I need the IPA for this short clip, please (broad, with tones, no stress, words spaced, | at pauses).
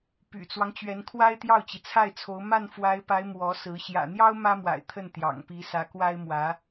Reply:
py̰˨˩t͡swɑ˦ŋ t͡ɕɥɛ˧˥nkʰwa˥ɪ̯ t̪jɑ˥˩ʊ̯t͡ɕi˩t͡sʰa˥˩ɪ̯t͡sʰo˧˥ʊ̯ ma˥˩nfwa˧˥ɪ̯pa˧˥ɪ̯ mwɔ˧˥sɹ̩˧˥ ɕjä̰˨˩n̪jɑ˥ʊ̯ mä˥mwa̰˨˩ɪ̯ t̪ʰə˥˩nt̪jɑ̰˨˩ŋpi˧˥ sä˧˥kwa˥ɪ̯mwä˧˥